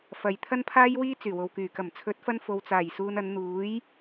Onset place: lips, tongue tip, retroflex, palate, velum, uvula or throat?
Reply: lips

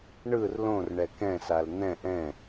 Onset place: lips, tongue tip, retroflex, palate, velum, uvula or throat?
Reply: retroflex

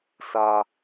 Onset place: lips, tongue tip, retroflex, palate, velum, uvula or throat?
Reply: tongue tip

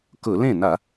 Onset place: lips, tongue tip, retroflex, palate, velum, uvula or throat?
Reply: velum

